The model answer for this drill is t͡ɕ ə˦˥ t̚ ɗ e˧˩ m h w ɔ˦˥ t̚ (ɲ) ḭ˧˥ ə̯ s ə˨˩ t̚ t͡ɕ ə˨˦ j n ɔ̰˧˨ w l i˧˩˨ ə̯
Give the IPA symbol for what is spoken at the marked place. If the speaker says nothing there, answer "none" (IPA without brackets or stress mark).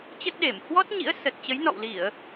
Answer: ɲ